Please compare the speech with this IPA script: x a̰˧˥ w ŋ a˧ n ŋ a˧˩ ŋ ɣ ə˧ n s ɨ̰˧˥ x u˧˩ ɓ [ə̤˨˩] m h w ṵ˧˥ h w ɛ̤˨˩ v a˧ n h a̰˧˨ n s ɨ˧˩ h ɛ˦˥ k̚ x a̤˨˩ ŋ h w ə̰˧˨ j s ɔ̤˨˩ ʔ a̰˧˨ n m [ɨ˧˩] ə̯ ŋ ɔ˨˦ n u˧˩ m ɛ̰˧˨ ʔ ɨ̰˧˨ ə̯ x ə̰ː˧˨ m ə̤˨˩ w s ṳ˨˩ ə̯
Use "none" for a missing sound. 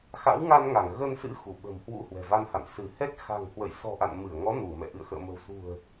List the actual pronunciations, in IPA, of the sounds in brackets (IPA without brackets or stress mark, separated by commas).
ə̤˨˩, ɨ˧˩